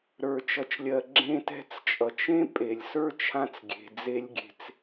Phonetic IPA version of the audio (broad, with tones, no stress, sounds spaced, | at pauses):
ɾ ə˞˩ t͡ʃ ʌ˩ t͡ʃ lʲ ɜ˩ ɡ͡ǁ ẽ˧ t ɛ̤˧ t͡s t͡ʃʼ ʌ˩ t͡ʃ ẽ˥ pʼ e˩ lʲ s ə˞˥ t͡ʃʰ ã˧ t͡s ɡʲ e̤˩ d͡z e˧ lʲ ɡʲ e̤˧ t͡s